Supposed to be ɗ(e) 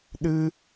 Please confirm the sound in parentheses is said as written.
no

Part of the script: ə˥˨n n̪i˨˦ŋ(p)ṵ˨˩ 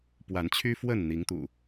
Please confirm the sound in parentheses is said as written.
no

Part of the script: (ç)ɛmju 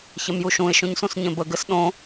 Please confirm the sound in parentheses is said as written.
yes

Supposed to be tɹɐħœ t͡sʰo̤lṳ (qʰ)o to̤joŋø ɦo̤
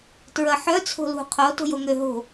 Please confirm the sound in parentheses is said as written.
yes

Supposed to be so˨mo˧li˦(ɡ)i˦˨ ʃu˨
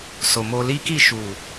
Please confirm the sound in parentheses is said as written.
no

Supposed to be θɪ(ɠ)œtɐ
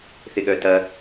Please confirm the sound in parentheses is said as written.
yes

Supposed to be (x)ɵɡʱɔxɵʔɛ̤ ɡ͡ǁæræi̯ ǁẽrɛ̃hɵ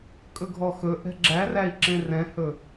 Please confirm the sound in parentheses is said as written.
no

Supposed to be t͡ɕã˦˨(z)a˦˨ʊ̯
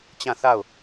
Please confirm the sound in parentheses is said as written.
no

